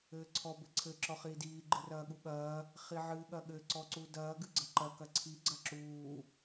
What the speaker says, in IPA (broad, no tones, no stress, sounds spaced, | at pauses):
ɘː ǀʰ ɔ b ɘ ǀʰ ɘ ǁ ɔ χ iː d iː ɡ͡ǃ ɨ r ɐː ɠ u ɠ ɐː | χ i ʕ ɨː ɠ ɐ ɠ ɘ ǀ ɔ ǀ u d ɐː ɡ ɨ ɡ͡ǀ ɐ ǃ ɐ k ɐ ǀʰ i ɡ͡ǀ ɐ ǁ uː